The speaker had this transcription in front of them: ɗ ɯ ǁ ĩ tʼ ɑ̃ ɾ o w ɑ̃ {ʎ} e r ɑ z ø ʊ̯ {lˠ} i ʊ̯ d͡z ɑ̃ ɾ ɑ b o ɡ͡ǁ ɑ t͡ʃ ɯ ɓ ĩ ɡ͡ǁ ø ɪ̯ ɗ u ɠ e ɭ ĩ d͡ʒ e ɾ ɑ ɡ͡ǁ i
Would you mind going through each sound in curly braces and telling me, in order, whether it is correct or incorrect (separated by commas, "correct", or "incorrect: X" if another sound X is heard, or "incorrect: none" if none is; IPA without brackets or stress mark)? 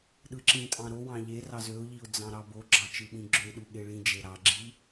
correct, incorrect: ʎ